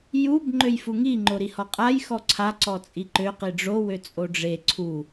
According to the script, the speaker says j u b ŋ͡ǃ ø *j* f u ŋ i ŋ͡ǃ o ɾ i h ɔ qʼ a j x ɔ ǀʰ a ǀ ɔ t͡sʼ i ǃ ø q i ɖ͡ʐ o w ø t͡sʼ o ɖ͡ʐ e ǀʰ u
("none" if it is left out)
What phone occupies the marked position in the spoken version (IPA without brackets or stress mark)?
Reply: j